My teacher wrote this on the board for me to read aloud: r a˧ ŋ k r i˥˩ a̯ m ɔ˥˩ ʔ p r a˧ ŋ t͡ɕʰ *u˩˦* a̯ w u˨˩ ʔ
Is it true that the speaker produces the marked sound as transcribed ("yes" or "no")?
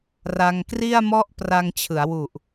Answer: no